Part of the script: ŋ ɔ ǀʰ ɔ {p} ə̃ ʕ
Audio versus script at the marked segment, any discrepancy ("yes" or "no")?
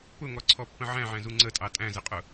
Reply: yes